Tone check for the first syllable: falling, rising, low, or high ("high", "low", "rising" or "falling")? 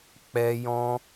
high